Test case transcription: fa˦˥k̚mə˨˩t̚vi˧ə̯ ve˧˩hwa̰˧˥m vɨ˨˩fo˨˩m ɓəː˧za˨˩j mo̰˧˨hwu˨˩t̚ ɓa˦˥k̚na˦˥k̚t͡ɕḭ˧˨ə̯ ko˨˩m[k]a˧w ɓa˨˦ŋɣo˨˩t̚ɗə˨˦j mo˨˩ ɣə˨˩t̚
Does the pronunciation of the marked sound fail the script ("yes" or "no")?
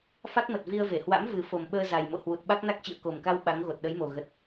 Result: no